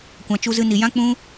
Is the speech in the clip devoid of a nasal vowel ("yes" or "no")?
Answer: no